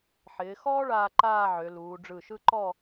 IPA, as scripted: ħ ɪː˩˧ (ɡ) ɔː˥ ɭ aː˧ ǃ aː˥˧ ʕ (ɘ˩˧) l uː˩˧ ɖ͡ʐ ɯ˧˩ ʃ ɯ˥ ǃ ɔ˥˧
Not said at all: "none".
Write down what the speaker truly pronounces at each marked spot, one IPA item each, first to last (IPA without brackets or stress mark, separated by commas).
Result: x, ø˩˧